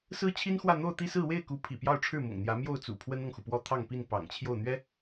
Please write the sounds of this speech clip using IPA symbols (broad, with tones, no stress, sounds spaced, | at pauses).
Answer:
s ɹ̩˥ t͡ɕʰ i˥ n x w ä˥˧ n̪ o˥˧ ʊ̯ t̪ i˥˧ s ɹ̩˥˧ w e˥˩ ɪ̯ k u˧˥ pʰ ḭ˨˩ p j ɑ˥˧ ʊ̯ ʈ͡ʂʰ ɻ̩˥˩ m ʊ̰˨˩ ŋ n̪ j ä˧˥ m j o˥˩ ʊ̯ t͡s ṵ˨˩ pʰ w ə˥ n ɤ˨ ŋ x u˩ p w ɔ˥ t̪ʰ ɑ˥˧ ŋ p i˥˩ n p ɑ̰˨˩ ŋ t͡ɕʰ j o˥˩ ʊ̯ n̪ ɥ ɛ˥